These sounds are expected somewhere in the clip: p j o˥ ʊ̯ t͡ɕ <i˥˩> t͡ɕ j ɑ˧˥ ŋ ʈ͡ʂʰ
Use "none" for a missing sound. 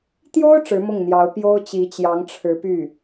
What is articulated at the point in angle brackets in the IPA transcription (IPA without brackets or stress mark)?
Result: i˧˥